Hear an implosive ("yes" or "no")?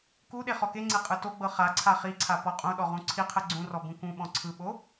yes